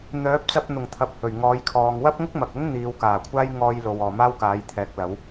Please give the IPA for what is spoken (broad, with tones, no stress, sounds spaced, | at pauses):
n̪ œː˨˥ p̚ t͡s ɐ˧ p̚ n̪ ʊ˨˩ ŋ t̪ʰ ɐ˨˥ p̚ h ɵ˨˩ ɥ ŋ ɔː˨˧ j kʰ ɔː˨ ŋ w ɐ˥ p̚ ŋ ʊ˥ k̚ m ɐ˨ k̚ ʊ˥ ŋ n̪ iː˨˧ w k aː˨˩ kʷʰ aː˥ j ŋ ɔː˧ j l o˨ w ɔː˨ m aː˥ w k aː˨˥ j t̪ʰ ɛː˨˥ k̚ l ɐ˨˥ w